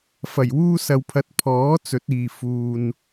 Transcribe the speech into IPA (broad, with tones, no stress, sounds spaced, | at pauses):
f ɐ˨˩ j w uː˧ s ɐ˨ w pʰ ɐ˨˥ t̚ pʰ ɔː˨˥ t͡s ɵ˨˥ t̚ iː˨ f uː˨ n